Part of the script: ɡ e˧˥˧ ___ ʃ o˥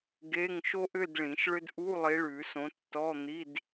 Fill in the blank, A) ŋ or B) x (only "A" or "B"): A